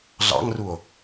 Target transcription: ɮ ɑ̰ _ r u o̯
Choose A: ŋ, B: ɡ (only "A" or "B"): A